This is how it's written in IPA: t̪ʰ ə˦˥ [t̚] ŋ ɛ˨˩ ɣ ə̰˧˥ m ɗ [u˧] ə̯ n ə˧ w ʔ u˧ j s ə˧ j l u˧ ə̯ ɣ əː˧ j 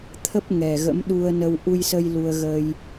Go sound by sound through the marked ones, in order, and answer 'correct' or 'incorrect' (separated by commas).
incorrect, correct